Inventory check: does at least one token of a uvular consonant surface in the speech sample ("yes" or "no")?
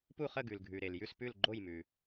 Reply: yes